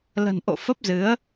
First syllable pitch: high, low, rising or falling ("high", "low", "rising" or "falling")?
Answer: low